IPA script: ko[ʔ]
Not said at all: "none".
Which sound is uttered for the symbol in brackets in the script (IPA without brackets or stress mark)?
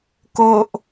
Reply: ʔ